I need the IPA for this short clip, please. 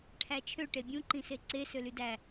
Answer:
ʈʰ æ t͡ʃʰ ø ʈ e bʲ ũ ǃ ĩ s e ǀ e s ø l y d æ

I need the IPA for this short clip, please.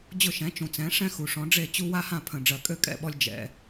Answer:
d͡ʑ ʊ˥˩ ʃ ɛ̃˩˥ t͡ʃ ũ˩ t͡s ɛ̃˩˥ ʂ ɛ̃˥ x u˩ ʂ ɔ̃˩˥ ɖ͡ʐ e˥˩ t͡ɕ u˥ w a˥ h ã˥˩ pʰ ə̃˩ ɖ͡ʐ ɜ˩ kʼ ø˥˩ kʼ ɛ̰˥˩ ɓ ɔ˧ lʲ d͡ʒ ɛ̰˩

